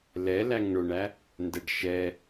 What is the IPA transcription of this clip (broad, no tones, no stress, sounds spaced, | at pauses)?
l ɛ l æ ŋ ɳ ʊ ɳ æ | n d ɛ ɖ ʃ ɛ